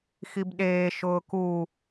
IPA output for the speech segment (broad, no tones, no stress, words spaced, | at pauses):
xibɗeː ʃʊːku